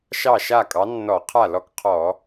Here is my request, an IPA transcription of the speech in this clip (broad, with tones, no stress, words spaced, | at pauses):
ʃɑ˥˩ʃa˥˩ kʼɑ˨˥nːɔ˧˩˧qʰa˥˩lɔ˥˩k qʰɔ˧˩˧